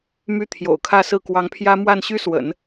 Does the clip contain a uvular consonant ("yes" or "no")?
no